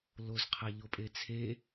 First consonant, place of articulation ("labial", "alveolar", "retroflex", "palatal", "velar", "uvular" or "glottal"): alveolar